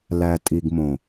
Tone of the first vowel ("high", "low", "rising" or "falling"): low